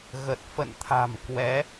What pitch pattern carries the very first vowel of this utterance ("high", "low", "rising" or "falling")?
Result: low